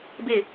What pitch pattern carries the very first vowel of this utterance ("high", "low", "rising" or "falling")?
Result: falling